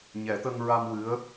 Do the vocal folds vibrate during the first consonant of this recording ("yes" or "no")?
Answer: yes